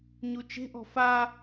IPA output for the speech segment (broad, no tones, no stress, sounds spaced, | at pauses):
ɲ u t͡ʃ e̤ ʔ ɔ̤ f a